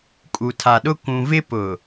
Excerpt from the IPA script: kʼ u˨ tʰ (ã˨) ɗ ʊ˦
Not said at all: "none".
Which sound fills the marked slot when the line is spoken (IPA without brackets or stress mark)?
a˨